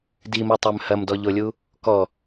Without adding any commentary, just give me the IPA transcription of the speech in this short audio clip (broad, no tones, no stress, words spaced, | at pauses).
dimotˤøm hɐmdɔʎolʲu | kɔ